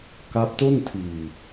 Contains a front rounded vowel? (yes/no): no